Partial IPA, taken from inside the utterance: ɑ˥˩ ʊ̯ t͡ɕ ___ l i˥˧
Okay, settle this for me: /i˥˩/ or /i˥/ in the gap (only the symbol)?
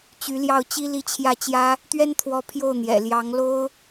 i˥